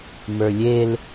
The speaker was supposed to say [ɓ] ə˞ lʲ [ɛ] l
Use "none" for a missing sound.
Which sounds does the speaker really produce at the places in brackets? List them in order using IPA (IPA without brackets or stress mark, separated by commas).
m, e